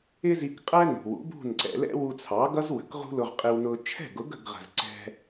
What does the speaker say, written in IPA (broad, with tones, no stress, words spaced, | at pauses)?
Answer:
ɪ˥zi˧kqʼæ˥nṳ˩ wṵ˩˥bṳ˥˩nǀɛ̰˧lɛ̰˥ wu˧t͡sʰɑ˩˥ɡʌ˥z wə̤˩˥kʁṳ˥lʊ˧ʁ qʼɪ˧wnʊ˧ t͡ʃʰɛ̤˥˩ɡʊ˩˥ɡə̤˥˩ɡʁə̤˩z ǀɛ̤˧